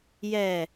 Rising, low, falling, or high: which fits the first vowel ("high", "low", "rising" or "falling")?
falling